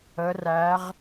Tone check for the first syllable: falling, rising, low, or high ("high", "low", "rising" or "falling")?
rising